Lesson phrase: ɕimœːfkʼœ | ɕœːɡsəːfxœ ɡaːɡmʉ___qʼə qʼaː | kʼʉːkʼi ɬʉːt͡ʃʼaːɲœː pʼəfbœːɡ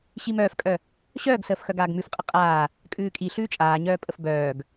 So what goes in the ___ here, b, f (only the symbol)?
f